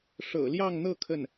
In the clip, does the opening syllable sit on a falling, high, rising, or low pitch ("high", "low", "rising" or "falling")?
low